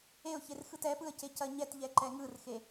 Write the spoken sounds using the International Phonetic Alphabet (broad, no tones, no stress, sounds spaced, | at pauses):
e ʊ̯ ç e r x ɯ t ɛ p ɯ ə̯ c e c ɐ ɲ ɛ t ʎ ɛ ǃ ɛ ŋ ɯ r x e